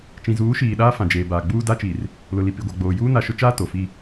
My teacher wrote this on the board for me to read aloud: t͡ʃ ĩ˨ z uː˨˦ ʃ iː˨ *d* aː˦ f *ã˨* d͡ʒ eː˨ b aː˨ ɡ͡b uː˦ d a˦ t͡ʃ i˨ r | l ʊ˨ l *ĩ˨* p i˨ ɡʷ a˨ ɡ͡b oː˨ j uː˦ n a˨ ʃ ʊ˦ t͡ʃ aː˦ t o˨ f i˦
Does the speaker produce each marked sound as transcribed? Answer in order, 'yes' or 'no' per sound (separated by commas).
no, yes, no